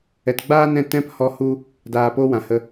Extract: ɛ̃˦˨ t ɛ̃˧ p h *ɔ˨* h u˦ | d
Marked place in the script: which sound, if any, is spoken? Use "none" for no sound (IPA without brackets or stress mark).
ɔ˧